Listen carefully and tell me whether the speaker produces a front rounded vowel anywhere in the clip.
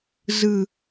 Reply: no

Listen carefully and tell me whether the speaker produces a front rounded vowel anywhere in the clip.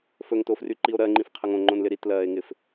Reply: yes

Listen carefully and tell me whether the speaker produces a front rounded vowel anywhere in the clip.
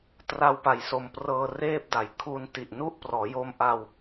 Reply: no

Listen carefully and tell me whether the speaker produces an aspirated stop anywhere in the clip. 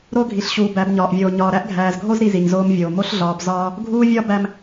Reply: no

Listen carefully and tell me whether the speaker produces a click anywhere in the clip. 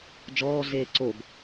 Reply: yes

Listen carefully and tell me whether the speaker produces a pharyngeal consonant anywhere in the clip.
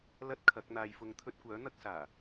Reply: no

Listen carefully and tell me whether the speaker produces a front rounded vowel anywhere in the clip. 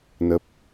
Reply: no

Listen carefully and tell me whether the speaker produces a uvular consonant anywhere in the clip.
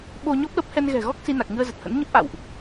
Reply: no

